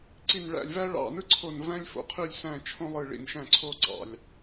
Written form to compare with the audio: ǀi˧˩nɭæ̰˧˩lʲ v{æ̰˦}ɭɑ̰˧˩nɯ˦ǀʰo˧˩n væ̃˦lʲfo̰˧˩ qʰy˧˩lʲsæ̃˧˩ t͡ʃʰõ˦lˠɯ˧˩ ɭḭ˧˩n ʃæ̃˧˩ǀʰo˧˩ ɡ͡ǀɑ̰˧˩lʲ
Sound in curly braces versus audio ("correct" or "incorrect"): incorrect